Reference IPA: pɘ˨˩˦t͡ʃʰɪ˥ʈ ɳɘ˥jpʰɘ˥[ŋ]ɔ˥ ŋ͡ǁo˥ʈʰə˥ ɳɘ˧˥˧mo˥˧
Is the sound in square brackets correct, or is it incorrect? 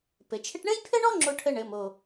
incorrect